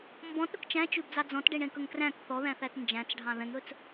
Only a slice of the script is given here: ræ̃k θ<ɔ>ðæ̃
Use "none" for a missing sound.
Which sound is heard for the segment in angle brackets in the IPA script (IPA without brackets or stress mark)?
ɔ